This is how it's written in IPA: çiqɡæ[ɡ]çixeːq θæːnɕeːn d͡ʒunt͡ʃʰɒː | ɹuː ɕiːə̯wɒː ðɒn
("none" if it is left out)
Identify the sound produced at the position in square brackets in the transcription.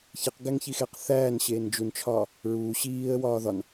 ŋ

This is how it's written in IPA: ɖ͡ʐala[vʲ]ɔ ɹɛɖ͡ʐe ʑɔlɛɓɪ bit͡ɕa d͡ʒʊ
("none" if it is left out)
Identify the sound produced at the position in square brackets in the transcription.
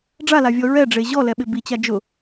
vʲ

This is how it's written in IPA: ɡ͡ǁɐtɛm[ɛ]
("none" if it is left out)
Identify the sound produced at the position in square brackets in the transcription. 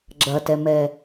ɛ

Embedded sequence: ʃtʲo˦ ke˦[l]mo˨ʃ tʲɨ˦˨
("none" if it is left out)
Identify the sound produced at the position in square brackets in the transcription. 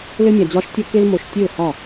l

